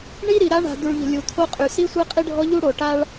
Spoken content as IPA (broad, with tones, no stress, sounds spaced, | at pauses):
ɳ i˦ ɾ i˨ ɾ a˦ ɳ a̤˨ d̪ u˨ ɭ ʎ ə̤˨ lʲ u˨ t̪ʰ o˦ qʼ y˨ s i˦ sʷ ɛ˦ qʼ i˦ ɖʱ ɔ˦ ʎ u˦ ɽ o˨ ʈ a˦ ɭ